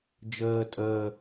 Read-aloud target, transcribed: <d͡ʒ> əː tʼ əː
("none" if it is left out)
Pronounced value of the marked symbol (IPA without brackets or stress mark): d͡ʒ